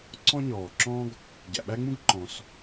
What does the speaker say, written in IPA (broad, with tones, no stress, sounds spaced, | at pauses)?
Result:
ǀ ɔ̃˥ ɲ ɔː˩ ǁ ɔ̃˥ ɡ | ɟ æ̰˩ ɓ æ˥ ŋ͡m ũ˥ ɡ ǃ ɔ̃˩ s